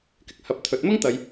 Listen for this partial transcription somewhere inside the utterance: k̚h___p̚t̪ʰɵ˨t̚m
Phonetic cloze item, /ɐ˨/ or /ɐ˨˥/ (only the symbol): ɐ˨